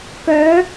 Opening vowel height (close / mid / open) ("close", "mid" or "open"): mid